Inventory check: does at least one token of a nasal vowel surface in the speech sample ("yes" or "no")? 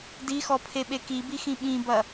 yes